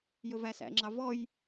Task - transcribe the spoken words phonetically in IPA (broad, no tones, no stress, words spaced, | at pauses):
jɵvæsæ̰ŋ͡ǁɑ vɔj